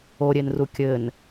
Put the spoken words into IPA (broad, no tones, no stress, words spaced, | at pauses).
oɾʲenru kʲɘn